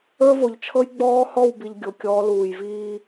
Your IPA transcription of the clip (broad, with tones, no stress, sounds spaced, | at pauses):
ə˞˦ v o˨ ʎ t͡ʃʰ ɤ˦ j ɡ͡b ɔː˦ h ɔ˦˨ w b i˨ ʎ ɡʲ o˨ kʲ ɔː˨˦ l uː˨ j v iː˦